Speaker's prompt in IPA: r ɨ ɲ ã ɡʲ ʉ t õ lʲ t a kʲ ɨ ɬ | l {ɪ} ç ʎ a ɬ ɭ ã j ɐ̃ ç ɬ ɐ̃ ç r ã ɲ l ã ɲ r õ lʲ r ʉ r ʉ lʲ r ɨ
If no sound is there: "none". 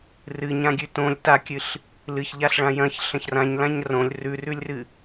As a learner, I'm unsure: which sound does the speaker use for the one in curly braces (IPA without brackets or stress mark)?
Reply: ɨ